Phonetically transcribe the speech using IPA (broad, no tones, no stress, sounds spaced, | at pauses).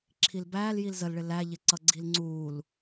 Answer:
ǁʰ i l b æː l j i l z ə l ɭ ɪ l æ ʎ ɪ ǀ ʌ ɡ͡ǀ i l ŋ͡ǀ uː l